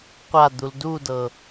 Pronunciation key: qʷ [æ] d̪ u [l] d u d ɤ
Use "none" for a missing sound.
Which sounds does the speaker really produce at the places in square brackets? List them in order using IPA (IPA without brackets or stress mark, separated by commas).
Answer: a, l